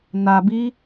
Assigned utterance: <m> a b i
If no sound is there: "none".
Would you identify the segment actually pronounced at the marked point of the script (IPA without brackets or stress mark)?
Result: n